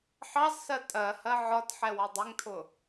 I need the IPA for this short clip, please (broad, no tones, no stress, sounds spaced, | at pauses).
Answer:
ħ ɑ z s ɜ tʼ ɜ h ɜ ʕ ɒ t ħ ɛ w ʌ dˤ ɪ ŋ tʰ ʊ